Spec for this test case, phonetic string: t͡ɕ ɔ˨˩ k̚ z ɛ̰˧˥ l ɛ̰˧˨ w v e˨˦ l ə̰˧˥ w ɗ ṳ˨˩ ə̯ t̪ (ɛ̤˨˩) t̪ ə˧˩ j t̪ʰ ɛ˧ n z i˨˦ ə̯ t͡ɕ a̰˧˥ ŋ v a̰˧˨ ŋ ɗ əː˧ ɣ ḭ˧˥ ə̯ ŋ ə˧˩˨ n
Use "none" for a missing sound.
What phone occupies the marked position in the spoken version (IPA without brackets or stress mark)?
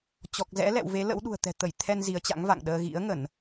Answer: ɛ̤˨˩